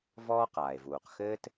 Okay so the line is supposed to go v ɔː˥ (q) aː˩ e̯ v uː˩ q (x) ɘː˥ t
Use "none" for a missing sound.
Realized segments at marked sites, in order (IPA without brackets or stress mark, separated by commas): q, x